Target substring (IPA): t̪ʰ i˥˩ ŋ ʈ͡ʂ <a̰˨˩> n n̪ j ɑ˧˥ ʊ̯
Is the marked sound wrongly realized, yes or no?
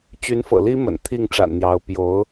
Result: no